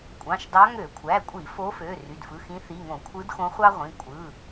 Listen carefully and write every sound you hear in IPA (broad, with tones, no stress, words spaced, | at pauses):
kʷʼɑ̃˩˧˩ʃdɑ˧˥ ŋø˧˩˧kʷʰæ˩˧˩kʷʼi˧˩˧ fo˧˥fø˩˧˩ ry˩˧˩dfɯ˩˧˩xĩ˧˥ θi˩˧˩ŋõ˧˩˧kʷʰɯ˧˥dxõ˧˥ χʷɑ˥ʁʷĩ˩˧˩ kʷʼɯ˩˧˩